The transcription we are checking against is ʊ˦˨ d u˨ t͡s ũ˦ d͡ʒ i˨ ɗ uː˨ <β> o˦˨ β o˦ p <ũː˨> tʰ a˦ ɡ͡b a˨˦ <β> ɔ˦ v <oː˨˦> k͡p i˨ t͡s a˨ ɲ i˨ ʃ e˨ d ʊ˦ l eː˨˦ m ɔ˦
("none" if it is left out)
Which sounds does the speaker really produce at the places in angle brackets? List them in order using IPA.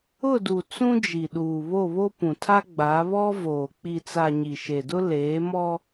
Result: β, ũ˨, β, oː˨

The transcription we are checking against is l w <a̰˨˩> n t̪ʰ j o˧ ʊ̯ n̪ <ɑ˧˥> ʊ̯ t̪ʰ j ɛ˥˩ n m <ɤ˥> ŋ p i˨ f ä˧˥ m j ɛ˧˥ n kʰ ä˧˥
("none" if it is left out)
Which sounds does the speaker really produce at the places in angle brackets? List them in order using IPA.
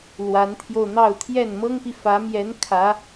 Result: a˧˥, ɑ˥˧, ɤ˥

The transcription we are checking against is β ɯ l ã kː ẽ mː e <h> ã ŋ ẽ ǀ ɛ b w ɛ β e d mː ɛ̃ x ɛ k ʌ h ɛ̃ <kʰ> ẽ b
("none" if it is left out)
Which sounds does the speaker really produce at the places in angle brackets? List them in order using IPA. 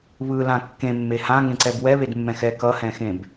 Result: h, x

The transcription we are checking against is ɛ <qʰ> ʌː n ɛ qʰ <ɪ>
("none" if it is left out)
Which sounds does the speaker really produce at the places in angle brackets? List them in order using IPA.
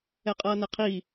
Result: qʼ, i

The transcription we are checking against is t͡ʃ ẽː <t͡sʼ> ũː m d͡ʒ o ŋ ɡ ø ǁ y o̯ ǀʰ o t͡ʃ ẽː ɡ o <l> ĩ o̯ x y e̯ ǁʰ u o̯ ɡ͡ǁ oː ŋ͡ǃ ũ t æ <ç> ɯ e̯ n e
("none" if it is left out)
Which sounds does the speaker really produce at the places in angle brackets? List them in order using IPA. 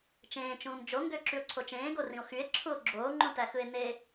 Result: t͡ʃ, r, x

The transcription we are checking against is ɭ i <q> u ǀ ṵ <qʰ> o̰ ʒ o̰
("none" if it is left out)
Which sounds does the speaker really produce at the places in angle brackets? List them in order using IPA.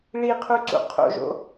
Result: qʰ, qʰ

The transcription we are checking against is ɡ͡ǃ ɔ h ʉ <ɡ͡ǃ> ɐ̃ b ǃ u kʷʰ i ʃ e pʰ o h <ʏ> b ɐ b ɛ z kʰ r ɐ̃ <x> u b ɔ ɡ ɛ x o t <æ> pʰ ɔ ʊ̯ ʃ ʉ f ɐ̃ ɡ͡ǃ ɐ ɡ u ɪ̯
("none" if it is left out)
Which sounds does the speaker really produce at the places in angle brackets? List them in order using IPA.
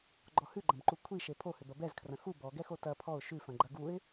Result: ɡ͡ǃ, ʏ, x, ɐ

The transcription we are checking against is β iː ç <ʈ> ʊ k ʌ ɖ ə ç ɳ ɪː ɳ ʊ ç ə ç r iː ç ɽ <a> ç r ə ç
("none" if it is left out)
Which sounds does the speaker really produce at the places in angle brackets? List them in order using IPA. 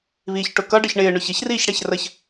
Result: ʈ, æ

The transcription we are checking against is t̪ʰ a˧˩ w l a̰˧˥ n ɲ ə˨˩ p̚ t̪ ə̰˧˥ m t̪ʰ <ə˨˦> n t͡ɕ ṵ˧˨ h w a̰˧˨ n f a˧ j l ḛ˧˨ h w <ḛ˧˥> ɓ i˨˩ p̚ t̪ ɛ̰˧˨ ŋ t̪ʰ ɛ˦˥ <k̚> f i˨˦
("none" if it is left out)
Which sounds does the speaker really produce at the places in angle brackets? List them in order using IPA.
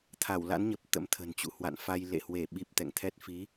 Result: ə̤˨˩, e˧˩, t̚

